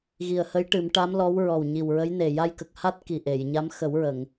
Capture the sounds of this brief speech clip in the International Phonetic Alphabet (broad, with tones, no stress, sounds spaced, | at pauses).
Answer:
ɣ i˨˩ ə̯ h ə˧˥ j ʈ ɨ˨˩˦ m ʈ a˧˥ m l ɔ˧˥ w ɹ ɔ˨˩ w ɲ i˨˩ w ɹ ə˧˥ j n e˨˩ j a˧ j k ə˨˩ k̚ h a˦˥ t̚ k i˨˩ ʔ e˨˩˨ j ɲ a˧˥ m x ə˨˩˦ w ɹ ə˨˩˨ ŋ